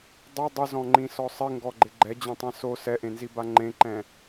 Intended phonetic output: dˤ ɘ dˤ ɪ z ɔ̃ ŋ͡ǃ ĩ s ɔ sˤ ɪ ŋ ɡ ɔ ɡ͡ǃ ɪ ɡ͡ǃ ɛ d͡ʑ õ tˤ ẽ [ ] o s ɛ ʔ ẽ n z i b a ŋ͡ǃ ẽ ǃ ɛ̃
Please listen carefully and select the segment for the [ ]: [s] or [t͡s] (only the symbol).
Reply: s